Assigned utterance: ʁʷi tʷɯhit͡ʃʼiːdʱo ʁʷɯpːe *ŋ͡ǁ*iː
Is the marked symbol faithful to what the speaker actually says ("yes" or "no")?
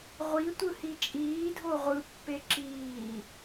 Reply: no